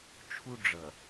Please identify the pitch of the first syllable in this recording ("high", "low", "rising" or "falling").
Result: high